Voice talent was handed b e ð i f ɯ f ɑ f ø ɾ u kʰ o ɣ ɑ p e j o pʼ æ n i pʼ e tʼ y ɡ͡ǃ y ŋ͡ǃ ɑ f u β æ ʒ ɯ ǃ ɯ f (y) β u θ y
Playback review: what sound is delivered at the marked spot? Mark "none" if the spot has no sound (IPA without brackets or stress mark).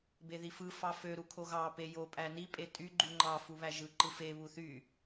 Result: e